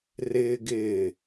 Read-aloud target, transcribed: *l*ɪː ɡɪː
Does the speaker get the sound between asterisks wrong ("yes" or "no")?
yes